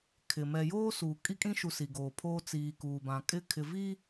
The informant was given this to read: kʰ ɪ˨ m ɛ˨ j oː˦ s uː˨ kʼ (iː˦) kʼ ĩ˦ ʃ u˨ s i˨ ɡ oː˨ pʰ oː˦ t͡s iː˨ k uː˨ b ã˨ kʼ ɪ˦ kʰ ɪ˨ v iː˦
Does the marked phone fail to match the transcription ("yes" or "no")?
yes